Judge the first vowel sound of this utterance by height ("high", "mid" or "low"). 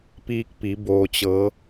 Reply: high